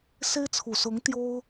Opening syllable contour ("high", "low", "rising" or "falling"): high